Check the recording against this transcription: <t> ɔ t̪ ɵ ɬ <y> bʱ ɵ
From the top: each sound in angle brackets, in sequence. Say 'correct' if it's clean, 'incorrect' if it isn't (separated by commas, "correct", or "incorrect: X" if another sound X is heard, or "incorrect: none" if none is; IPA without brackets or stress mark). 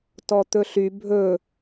correct, correct